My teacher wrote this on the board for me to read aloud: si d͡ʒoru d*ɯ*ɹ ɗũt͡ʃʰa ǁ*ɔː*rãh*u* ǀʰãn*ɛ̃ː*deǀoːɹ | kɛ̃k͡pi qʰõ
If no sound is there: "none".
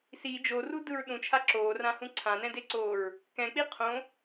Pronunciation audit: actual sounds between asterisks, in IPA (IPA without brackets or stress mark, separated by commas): ɯ, oː, ũ, ɛ̃